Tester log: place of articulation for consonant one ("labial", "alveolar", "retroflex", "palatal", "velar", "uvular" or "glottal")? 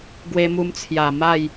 velar